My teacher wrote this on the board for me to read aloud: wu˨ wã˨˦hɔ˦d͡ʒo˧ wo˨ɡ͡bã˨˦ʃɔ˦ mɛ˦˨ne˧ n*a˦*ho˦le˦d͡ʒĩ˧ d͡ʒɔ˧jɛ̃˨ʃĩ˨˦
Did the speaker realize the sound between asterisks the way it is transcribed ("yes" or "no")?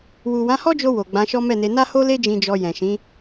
yes